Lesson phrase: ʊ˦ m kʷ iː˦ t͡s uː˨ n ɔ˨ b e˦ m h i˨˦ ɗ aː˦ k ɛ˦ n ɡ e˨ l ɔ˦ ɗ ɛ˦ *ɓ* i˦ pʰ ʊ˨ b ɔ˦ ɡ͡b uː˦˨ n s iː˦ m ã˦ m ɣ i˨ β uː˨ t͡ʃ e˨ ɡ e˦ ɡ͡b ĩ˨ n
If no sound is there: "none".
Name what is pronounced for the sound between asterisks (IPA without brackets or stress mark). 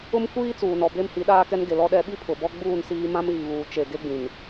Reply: ɓ